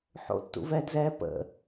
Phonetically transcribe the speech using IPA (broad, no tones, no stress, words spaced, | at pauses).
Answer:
ħo̰tːṵvɛːdzɛː pə̰